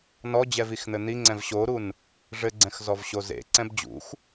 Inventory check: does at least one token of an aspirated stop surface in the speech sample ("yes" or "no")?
no